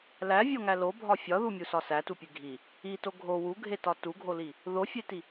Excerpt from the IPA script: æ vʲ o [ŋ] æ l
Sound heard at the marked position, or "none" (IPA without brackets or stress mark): ŋ